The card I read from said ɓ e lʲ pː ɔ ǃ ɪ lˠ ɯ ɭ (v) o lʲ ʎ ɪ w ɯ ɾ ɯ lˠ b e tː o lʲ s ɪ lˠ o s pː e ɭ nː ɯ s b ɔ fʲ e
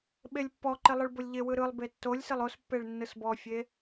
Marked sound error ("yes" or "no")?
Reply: yes